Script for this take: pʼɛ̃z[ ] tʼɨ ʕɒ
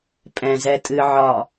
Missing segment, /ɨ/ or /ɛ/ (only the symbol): ɛ